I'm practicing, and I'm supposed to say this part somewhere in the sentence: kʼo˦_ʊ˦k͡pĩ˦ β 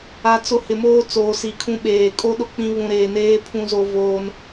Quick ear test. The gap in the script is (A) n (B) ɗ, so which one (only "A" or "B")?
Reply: B